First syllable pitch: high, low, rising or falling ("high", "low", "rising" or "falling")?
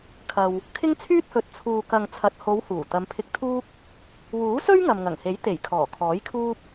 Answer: low